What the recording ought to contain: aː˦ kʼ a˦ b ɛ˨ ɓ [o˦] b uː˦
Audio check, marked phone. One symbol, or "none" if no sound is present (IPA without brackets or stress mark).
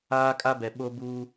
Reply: o˦